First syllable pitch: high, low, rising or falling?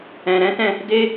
low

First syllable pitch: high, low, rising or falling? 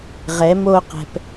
rising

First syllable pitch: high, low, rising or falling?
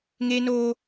high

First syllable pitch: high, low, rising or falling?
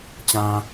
low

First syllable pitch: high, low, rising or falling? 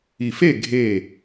low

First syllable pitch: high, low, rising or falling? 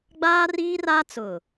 high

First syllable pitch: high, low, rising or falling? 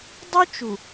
high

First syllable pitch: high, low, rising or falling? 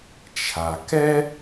low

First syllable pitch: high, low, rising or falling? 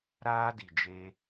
high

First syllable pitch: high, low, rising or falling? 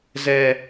high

